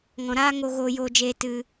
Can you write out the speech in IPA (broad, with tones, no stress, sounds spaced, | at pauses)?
ŋ ɔ̃˨ ɾ aː˦ ŋ o˧ ɣ oː˧ j oː˧ d͡ʒ eː˧ t ɨ˧